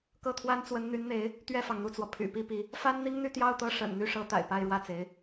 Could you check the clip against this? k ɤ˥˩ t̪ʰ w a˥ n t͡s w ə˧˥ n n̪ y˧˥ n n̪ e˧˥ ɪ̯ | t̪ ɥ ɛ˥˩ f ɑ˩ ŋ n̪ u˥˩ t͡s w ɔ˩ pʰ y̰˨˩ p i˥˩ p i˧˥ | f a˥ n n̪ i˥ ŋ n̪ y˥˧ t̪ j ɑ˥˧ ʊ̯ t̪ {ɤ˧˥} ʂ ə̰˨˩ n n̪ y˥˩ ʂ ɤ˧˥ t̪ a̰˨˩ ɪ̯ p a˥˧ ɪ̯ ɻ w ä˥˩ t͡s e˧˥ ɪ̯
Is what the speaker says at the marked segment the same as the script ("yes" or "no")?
no